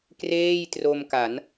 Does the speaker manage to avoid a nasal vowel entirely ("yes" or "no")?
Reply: yes